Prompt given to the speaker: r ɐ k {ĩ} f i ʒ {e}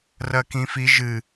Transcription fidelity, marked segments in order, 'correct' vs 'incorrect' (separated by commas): correct, incorrect